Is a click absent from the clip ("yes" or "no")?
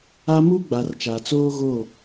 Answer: yes